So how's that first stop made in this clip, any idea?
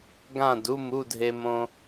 plain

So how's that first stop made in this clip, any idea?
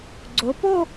click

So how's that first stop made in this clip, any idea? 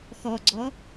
click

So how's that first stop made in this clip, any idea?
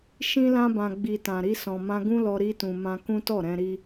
plain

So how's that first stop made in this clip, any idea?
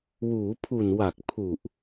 aspirated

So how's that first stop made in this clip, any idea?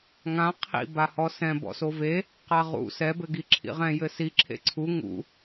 aspirated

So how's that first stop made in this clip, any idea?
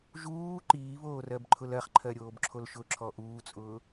click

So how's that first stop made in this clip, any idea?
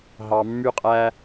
ejective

